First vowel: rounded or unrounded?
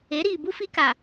unrounded